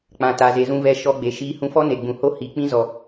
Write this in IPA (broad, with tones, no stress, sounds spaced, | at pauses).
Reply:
k͡p ã˨ t a˨ z e˨ z ũ˧ v ɛ˧ ʃ ɔ˧ ɡ͡b e˨ ʃ iː˧ h ũ˧ f ɔ˦ n e˨ ɡ͡b ũ˨ h o˦ h i˨ k͡p ĩ˦ z ɔ˨